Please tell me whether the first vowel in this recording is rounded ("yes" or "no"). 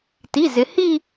no